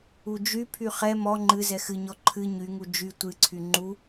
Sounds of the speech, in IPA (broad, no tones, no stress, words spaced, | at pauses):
ud͡ʒypʰy χɛ mɔ ŋ͡ǃɨ zɛxɨɲɔ ǃʰɨ ɲyŋu d͡ʒy tʷɨǀʰy ŋ͡ǃu